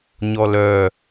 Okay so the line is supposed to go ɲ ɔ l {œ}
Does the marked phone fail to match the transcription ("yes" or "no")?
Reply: no